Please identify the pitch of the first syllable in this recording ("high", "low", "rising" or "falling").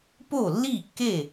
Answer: falling